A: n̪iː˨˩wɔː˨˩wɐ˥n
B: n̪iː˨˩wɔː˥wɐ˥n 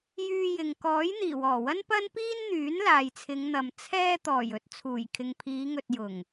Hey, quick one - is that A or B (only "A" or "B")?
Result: A